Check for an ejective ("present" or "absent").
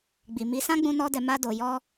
absent